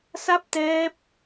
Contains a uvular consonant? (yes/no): no